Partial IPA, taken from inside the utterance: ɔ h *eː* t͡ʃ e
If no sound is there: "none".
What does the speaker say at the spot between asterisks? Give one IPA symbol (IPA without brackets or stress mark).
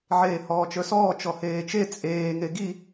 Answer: eː